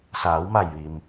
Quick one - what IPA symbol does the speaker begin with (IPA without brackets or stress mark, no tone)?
s